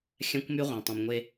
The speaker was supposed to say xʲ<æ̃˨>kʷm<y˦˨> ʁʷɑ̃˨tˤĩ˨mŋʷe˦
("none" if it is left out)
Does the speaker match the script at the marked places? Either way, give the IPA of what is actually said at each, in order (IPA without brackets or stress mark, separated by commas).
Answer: æ̃˦, y˦